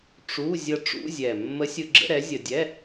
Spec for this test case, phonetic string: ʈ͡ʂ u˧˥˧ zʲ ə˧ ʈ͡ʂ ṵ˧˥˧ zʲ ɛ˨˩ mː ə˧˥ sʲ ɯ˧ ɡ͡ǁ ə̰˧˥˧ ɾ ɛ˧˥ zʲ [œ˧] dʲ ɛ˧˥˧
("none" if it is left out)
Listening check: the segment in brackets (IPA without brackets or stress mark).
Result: ə˧